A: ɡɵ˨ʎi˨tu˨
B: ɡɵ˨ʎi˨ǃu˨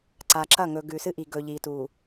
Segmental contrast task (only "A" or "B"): A